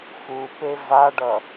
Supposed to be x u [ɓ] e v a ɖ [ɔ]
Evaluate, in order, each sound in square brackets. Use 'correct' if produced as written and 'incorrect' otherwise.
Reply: incorrect, incorrect

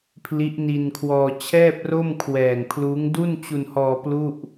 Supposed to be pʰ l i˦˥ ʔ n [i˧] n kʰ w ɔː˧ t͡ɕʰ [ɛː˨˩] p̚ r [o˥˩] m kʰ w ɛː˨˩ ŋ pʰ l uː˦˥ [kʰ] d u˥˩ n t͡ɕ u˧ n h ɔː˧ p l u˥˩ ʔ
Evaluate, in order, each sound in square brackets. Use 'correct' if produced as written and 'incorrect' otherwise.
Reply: correct, incorrect, correct, incorrect

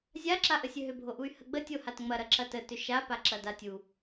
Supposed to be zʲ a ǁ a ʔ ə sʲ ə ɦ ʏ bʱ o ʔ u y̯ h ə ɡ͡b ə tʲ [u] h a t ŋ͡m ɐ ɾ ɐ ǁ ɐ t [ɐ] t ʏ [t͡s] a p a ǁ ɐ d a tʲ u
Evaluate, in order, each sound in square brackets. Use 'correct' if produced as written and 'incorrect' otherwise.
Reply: incorrect, incorrect, incorrect

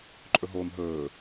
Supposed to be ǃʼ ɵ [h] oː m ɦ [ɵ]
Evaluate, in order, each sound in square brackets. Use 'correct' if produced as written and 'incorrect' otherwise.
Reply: incorrect, incorrect

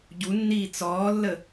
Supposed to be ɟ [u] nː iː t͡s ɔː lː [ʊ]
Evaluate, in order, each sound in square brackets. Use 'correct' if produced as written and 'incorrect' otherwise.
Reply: correct, incorrect

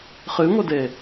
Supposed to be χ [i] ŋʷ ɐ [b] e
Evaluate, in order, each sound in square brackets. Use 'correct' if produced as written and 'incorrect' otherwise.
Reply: incorrect, incorrect

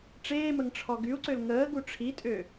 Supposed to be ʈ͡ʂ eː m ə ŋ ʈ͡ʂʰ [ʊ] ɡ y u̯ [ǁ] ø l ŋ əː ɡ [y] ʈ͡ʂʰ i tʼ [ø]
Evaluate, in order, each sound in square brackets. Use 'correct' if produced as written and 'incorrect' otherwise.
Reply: incorrect, incorrect, incorrect, correct

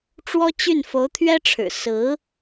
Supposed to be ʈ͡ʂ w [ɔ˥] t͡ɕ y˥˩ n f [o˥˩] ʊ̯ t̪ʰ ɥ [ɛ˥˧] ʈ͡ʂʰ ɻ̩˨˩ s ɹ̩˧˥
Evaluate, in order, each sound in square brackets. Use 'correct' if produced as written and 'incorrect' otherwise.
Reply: correct, incorrect, incorrect

